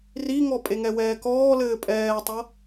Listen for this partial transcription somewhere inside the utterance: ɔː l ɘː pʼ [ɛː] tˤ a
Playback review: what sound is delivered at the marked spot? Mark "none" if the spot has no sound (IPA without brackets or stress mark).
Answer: ɛː